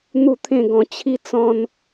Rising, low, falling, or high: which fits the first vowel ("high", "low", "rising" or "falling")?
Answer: falling